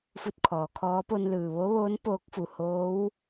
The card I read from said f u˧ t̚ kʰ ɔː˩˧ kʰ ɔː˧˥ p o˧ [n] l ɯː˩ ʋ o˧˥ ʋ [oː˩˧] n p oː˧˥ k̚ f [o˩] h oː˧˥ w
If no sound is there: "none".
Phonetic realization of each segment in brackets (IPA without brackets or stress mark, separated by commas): n, oː˧˥, u˩